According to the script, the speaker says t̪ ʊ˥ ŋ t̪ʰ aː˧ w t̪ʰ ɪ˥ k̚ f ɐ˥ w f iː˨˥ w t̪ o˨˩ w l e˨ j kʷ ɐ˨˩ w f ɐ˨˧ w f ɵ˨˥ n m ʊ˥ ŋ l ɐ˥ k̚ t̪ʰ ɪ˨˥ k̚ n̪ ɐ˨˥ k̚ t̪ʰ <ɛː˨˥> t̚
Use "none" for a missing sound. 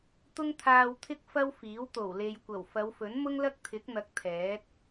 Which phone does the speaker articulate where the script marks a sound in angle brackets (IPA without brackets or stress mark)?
ɛː˨˥